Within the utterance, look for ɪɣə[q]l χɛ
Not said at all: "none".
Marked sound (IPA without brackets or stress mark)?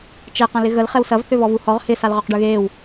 none